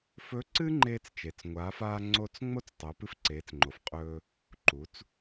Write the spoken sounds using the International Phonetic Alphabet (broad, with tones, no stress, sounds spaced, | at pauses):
f ɵ˧˥ ǀ ɨ˥ ŋ͡ǃ eː˧ t͡s t͡ʃ e˩ t͡s ŋʷ aː˩˧ f aː˧ ŋ͡ǀ o˧ t͡s ŋ͡m o˥ t͡s tˤ o˩˧ p ɨ˧ f ǀ eː˩˧ t͡s ŋ͡ǃ o˩ f qʼ ɵː˧ | ǃ u˩˧ t͡s